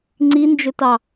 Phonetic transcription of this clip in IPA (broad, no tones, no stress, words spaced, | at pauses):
ŋ͡ǀind͡ʒɵtɑ